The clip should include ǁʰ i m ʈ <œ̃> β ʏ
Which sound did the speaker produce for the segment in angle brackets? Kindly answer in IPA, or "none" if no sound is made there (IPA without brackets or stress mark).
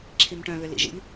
œ̃